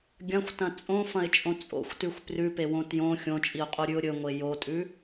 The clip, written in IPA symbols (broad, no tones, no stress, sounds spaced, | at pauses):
ɡʲ ɐ̃ xʷ t ɐ̃ t͡sʼ õ f ɐ̃ ɪ̯ t͡ʃʼ õ t͡sʼ o̰ xʷ t ʉ xʷ p r ʉ p e w õ t j õ xʲ õ t͡ʃʼ i ʊ̯ qʼ o ɾʲ ʉ ʊ̯ ɾʲ ɵ ŋʷ e j o tʼ ʉ